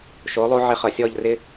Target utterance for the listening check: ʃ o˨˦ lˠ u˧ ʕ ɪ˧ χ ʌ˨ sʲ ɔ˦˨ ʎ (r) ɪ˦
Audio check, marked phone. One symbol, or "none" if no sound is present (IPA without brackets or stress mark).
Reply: r